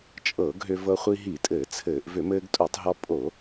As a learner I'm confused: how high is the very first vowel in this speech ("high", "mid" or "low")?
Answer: mid